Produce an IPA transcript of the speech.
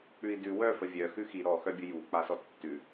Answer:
k͡p ʉ i̯ d ʉ w œ f ə vʲ œ x ʉ x i ɾ ɔ x œ bʲ ə j u k͡p a s ɔ tː ʉ

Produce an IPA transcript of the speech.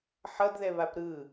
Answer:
ħ ʌ d ð ɛ β a p ɾ ɯ

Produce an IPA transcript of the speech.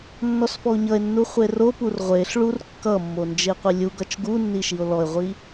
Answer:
nː ɔ s f ɔ o̯ ɲ ʌ e̯ nː u χʷ e r o p u r ʁʷ e ɬ ɭ u r kː ʌ mː o n d͡ʒ e qʷ i lʲ u ɡ ʌ t͡ʃ ɡ u nː i ʃ i o̯ l ɔ e̯ ʁʷ i

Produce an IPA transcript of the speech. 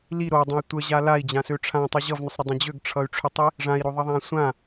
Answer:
l i ɾ o dˤ ə̃ i̯ tʷ ə ʑ a l a i̯ d͡ʑ ã s ø ʈ͡ʂʰ ã tˤ y ʑ ʌ v n ʏ sˤ ɾ ə dˤ ə̃ d͡ʑ ø ɡ ʈ͡ʂʰ ʌ y̯ ʈ͡ʂʰ ʏ tˤ i | ʐ ã i̯ ɾ o ðˤ ʌ ðˤ ã sʷ ã

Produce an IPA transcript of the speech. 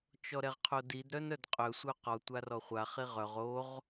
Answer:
t͡ʃ ɔ ɾ ɛ ʁ qʰ o d i d ɾ œ n œ d qʼ œ sʷ œ q ɔ tʷ a r ɔ χʷ a χ i ʁ œ ʁ o ʁ

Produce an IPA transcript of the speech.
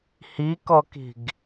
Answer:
h i k ɔ k i̤ ɡ

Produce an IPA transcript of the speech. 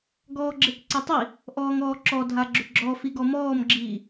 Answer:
ɡ ɔː ɡ͡ǁ e k ǀ e tˤ i | ʔ ɔː ŋ ɔː ǁ ɔ dʱ a ɡ͡ǁ ʏ ɡ͡ǁ ɔ f i ɡ ɔ m ɔː m ɡ͡ǁ iː

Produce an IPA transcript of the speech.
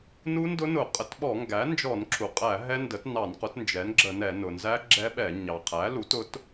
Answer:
n u˦˥ n d ʊ˦˥ n ʊ˧˩˧ qʼ ə˩˥ t ɓ ɔ˧˩˧ ŋ ɡ æ˩˥ n d͡ʒ ɔ˧˩˧ n ǁʰ u˩ qʼ æ˧˩˧ ɦ ɛ˦˥ n d ə˩˥ t n ɑ˧˩˧ n q ʊ˩˥ t n d͡ʒ ɛ˩˥ n ɡ͡ǁ ə˧˩˧ n ɛ˧˩˧ n ʊ˩ n z æ˦˥ ɡ͡ǁ ɛ˦˥ ɓ ɛ˧˩˧ ɲ ɑ˩ qʰ æ˩˥ l u˩˥ t ʊ˩˥ t

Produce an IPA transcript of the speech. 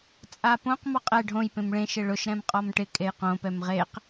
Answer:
t͡sʼ a p õ q m ɔ qʼ ɛ ɖʱ õ j p ẽ m ɭ ẽ ʃ ɪ ɭ ʊ ʃ ɾ ɛ̃ m qʼ ɔ m ʈ ɪ kʼ e j q õ p ɛ m ʁ e q

